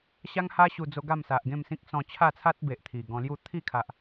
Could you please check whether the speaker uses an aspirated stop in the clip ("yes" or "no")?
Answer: yes